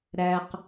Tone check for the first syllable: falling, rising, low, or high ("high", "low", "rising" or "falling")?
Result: high